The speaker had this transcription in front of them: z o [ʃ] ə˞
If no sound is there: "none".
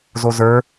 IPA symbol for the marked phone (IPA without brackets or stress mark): z